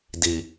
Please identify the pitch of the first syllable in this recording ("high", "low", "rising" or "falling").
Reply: low